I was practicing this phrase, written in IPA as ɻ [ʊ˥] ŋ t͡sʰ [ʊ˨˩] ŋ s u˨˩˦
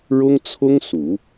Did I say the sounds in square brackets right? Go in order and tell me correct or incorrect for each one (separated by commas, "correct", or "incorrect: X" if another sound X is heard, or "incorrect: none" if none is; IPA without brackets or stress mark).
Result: correct, incorrect: ʊ˥